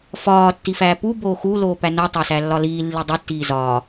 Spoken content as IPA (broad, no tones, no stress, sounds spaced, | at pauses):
f ɒː tː i f æː p u b oː x u l oː p æ n o tˤ æ s æ lː ɒ l iː lː i dˤ i tː iː z ɒː